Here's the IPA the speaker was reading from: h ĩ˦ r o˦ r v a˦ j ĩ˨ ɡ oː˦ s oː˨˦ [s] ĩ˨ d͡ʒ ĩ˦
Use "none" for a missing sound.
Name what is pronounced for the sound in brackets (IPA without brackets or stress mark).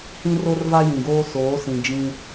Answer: s